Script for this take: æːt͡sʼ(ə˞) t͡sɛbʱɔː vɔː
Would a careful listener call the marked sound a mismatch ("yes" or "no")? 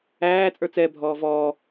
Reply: no